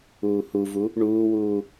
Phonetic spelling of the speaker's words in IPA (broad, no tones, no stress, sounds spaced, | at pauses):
uː h u v u | ɳ uː w uː